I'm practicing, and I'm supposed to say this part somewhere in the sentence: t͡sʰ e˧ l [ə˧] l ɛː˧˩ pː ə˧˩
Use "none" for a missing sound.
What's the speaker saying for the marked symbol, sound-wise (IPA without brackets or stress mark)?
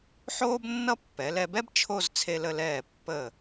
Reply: ə˧